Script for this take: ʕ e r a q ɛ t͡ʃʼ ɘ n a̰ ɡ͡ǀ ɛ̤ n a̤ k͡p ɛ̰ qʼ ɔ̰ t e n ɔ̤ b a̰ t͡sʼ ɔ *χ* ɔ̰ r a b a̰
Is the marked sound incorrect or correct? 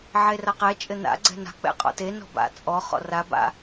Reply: correct